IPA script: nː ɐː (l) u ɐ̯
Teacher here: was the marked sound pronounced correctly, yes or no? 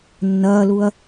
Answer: yes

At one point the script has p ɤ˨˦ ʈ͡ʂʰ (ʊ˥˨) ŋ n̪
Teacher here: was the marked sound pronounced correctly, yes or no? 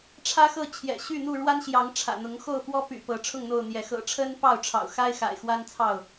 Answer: yes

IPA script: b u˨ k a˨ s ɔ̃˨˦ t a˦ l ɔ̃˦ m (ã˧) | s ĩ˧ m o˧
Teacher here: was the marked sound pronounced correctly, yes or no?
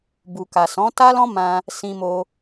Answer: yes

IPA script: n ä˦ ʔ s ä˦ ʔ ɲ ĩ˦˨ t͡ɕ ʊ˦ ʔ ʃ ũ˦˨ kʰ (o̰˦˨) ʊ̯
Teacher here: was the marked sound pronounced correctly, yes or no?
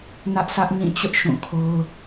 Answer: no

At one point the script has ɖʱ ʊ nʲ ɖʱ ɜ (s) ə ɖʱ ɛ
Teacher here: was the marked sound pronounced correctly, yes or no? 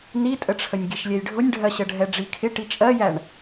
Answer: no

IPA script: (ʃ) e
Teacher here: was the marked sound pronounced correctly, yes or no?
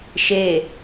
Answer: yes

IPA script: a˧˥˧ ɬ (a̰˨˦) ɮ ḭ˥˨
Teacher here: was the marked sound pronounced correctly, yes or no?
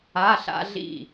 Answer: no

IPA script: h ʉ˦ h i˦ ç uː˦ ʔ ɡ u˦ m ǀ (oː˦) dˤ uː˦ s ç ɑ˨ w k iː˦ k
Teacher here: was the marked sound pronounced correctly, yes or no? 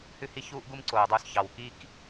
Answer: no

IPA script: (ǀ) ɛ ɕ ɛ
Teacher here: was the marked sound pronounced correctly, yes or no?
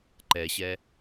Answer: no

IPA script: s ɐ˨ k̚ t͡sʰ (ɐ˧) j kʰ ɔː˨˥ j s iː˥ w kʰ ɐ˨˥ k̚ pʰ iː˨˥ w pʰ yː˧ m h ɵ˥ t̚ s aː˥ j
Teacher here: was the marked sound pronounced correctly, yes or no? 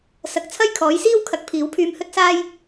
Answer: no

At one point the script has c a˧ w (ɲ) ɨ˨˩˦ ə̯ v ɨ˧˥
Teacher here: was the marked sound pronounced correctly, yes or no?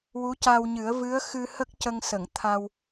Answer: yes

